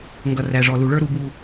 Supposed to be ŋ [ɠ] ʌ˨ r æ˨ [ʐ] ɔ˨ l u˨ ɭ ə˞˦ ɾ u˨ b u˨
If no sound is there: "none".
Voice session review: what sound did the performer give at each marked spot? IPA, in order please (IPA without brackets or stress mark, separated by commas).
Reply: ɡ, ʐ